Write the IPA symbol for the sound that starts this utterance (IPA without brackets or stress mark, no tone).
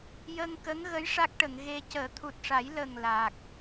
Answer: j